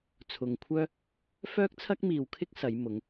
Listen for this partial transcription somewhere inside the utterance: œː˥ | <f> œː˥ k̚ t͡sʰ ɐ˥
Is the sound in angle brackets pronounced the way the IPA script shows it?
yes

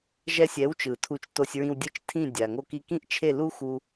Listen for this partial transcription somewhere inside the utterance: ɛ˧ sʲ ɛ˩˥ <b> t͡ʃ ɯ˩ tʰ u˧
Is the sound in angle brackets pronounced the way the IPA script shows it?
no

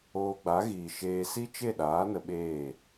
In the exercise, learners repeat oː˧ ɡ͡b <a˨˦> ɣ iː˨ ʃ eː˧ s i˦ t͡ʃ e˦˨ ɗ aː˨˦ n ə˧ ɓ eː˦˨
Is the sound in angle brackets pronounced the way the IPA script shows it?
yes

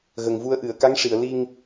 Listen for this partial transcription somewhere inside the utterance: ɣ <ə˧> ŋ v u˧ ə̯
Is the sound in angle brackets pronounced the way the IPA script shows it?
no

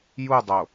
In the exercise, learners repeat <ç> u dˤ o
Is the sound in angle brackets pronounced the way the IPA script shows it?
no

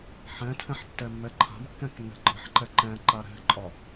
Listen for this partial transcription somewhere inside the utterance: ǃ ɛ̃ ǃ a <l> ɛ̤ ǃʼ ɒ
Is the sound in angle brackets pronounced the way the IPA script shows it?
no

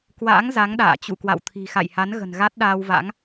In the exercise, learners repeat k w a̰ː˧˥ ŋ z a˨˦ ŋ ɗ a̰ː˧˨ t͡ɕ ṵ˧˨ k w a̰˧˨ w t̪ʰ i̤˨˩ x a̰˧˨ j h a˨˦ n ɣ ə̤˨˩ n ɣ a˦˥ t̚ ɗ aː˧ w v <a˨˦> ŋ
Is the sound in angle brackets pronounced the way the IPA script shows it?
no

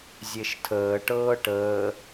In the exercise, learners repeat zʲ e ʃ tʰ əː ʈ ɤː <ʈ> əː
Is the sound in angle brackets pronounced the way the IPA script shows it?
yes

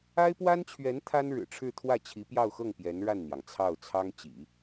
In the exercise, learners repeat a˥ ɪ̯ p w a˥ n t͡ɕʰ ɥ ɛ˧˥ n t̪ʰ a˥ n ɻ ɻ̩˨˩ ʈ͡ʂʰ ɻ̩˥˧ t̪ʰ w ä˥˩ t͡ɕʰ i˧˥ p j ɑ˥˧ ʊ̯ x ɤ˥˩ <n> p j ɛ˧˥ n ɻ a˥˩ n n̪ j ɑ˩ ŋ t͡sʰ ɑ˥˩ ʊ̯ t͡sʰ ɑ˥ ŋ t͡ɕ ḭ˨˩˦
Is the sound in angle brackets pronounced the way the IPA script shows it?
no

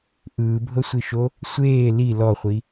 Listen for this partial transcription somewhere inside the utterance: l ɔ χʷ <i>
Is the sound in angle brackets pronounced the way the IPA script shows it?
yes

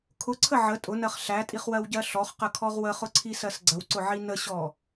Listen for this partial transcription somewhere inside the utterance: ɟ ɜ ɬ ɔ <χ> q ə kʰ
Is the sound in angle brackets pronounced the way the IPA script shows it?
yes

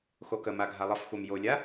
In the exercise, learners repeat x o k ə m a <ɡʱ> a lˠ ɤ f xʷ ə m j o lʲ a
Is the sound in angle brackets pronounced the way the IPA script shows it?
yes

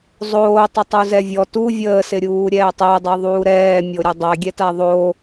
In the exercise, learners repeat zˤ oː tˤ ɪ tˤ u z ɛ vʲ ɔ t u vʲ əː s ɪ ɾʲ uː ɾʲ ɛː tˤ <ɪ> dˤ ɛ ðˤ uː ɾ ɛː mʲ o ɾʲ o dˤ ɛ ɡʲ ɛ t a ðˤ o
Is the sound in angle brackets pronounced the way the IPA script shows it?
no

